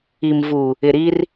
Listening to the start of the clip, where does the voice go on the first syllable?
low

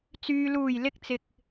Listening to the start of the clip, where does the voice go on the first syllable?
low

